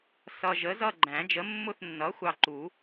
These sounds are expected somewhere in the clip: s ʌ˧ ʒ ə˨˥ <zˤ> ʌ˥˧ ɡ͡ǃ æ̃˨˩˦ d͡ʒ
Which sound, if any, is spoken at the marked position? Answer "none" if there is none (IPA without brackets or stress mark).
z